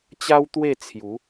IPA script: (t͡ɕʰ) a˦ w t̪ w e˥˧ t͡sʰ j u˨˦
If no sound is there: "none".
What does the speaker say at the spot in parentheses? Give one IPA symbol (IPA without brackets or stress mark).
t͡ɕ